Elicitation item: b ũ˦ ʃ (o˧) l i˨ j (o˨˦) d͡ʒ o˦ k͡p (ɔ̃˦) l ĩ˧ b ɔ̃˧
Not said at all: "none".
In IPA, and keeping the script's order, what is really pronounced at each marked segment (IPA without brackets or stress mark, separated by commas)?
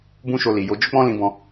o˧, o˨˦, ɔ̃˦